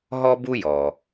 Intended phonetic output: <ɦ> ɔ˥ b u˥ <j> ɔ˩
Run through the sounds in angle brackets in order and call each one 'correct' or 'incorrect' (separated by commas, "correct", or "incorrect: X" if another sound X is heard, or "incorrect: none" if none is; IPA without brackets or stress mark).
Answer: correct, correct